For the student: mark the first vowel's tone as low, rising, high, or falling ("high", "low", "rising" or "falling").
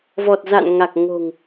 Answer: low